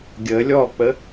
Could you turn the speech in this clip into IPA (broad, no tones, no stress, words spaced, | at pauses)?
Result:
ɡʲə lʲɔk͡pə